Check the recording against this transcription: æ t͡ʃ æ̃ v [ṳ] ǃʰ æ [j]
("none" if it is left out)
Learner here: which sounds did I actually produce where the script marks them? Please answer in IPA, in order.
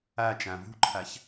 ṳ, ç

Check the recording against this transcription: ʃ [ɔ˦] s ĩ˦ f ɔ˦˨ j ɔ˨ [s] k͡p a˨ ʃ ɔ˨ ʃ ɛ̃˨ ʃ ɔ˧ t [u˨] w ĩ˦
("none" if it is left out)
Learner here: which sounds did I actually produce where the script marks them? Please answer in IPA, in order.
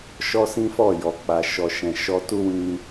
ɔ˦, none, u˦

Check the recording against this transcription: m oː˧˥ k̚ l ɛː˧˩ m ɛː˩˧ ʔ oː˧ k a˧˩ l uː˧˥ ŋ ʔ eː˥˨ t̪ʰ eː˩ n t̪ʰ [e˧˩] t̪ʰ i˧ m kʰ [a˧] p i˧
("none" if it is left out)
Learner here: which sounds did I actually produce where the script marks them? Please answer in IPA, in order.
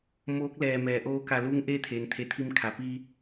e˩˧, a˩

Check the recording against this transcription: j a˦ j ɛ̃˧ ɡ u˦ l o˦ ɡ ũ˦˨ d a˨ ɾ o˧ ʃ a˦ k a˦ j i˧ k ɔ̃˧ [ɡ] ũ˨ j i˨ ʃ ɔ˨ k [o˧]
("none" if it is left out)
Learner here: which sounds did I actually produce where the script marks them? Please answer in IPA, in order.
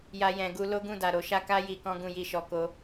ɡ, o˧

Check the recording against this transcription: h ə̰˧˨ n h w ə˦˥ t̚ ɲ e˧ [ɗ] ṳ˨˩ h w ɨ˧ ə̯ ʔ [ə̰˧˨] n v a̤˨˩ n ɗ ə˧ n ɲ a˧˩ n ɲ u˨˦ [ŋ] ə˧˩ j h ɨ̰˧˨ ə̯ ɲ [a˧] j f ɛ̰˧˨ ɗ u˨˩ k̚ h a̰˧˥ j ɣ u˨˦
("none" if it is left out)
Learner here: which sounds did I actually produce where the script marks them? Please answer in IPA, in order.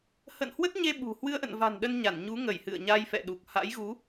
ɓ, ə̰˧˨, ŋ, a˧

